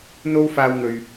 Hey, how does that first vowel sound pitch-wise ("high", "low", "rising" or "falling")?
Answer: high